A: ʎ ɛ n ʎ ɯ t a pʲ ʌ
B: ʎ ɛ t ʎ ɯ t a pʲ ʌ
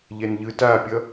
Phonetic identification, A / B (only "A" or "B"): A